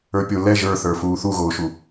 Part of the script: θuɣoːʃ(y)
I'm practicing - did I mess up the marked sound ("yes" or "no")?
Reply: yes